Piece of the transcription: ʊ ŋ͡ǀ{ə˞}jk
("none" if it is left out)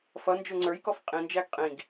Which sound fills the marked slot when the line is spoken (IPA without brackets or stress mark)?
ə˞